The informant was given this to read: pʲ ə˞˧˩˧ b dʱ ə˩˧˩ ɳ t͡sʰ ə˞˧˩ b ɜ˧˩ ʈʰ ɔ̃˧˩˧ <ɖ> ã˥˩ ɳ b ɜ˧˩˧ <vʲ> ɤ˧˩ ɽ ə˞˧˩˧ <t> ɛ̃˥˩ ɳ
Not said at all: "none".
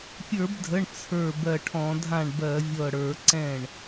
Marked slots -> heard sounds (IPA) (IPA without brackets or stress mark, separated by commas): dʱ, vʲ, ǀ